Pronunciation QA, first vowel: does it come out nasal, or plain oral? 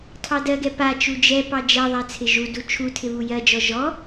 oral